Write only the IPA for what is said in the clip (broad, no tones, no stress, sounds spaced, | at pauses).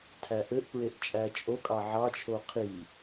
tʰ æ ʔ ɘ ʔ p ɹ e ʔ t͡ʃʼ æ t͡ʃʼ o kʼ ɑ ʕ ɑ t͡ʃʰ o qʰ i